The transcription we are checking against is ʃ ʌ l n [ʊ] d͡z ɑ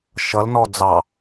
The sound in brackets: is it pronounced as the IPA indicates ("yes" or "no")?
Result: no